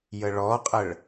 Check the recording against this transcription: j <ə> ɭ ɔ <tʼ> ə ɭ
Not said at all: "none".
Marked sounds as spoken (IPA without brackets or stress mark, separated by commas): ə, qʼ